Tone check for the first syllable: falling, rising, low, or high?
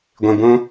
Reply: low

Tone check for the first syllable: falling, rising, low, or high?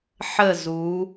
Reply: falling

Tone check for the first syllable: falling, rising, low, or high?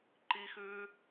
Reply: high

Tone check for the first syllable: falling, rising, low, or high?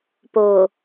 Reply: low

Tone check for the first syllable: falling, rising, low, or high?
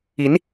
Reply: rising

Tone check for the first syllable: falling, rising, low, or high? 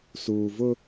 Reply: low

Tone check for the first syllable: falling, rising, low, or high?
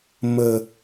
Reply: low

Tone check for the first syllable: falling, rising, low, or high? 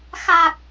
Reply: low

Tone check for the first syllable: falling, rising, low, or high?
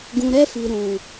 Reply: low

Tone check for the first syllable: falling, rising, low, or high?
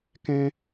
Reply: high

